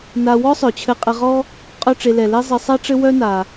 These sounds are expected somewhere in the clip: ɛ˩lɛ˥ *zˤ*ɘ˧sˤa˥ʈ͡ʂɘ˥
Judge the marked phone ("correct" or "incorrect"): correct